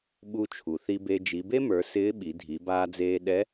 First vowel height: high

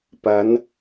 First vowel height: low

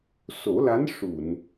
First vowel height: mid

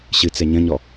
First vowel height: high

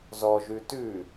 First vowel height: mid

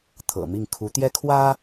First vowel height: mid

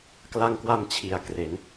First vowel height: low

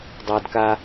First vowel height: low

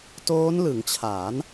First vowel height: mid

